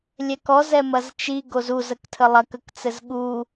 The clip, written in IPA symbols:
lʲ ɛ k ɔ z ɛ m ɐ z t͡ʃ i ɡ o z u z ə k tʰ ə lˠ ɐ k ə k t͡s ɘ z ɠ u

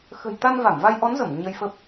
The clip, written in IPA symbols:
x ə̤˨˩ j t̪ a˧ n v a˧˩ m v a˧ j ʔ ɔ˨˦ n z ə˧˩ m ɲ ə˧ j f ə˦˥ p̚

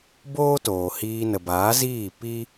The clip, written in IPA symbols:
b oː˦ t oː˨ h iː˧ n ə˨ b aː˨˦ z iː˦˨ p i˦

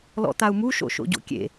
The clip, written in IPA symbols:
l ɔ̰ t̪ a u̯ m u ʃ o̰ ʃ o̰ ɟ o̰ kʲ ḛ

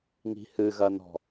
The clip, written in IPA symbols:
ŋ i̤ h ɨ ɣ ɐ n ɔ̤

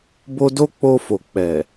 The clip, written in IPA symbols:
b o˧ d o˦ k͡p o˧ f o˨ k͡p ɛ˨

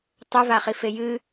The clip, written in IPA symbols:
tˤ ɵ v a χ i f e j ɨ

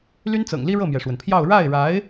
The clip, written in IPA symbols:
l y˥ n t͡s ɤ̰˨˩ ŋ l i˥ ɻ ɤ˥˩ m j ɛ˩ ʂ w ə˩ n pʰ j ɑ˥˧ ʊ̯ ɻ a˥˩ ɪ̯ ɻ a˧˥ ɪ̯

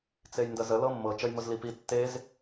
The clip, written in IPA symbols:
t͡s e j n d ə z ə l ɤ mː ɤ t͡ʃ ə j m ʊ z l i p i tː e z

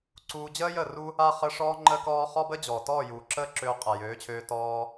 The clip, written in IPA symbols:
ǀ uː˧ d͡ʑ əː˦ j ə˦˨ r u˦ | a˦ χ ə˧ ʂ ɔː˦ ŋ͡ǃ ə˦ k ɔː˦ χ ɔ˦ b ə˦ d͡ʑ ɔː˨ t ɔː˦˨ j uː˨ ǁ əː˦ ǁ øː˧ qʼ ɛ˨ j øː˨˦ t͡ɕʰ øː˧ t ɔː˦

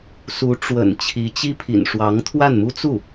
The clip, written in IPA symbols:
s u˧˥ ʈ͡ʂ w ə̰˨˩ n t͡ɕʰ i˧˥ t͡ɕ i˥ pʰ ḭ˨˩ n ʂ w ɑ˧˥ ŋ t̪ʰ w a˥˩ n m u˥ t͡s u˥˩

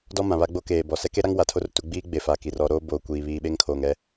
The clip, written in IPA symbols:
d ɔ˦ m ã˨ β a˦ ɡ͡b o˦ k eː˨ b ɔ˨ s ɛ˦ k e˦ ɾ a˦ ŋ w a˨ tʰ o˦ r t u˨ ɡ͡b iː˦ ɡ͡b e˨ f aː˨ k i˨ r ɔ˨ ɾ oː˦ b oː˨ kʷ iː˨ β iː˨ ɓ e˦ ŋ kʰ oː˨ ŋ ɛ˦

